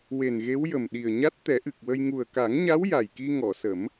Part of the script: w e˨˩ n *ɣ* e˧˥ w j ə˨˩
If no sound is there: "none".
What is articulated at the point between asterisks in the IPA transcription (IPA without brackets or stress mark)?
ɣ